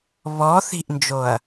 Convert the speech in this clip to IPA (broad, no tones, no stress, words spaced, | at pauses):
βɔ θi̤ʔnd͡ʒoɐ̯